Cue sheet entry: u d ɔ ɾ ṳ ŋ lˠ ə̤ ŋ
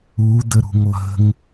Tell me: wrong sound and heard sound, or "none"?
ɔ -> ə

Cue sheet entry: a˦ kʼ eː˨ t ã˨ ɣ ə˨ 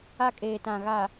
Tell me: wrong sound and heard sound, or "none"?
ə˨ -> a˨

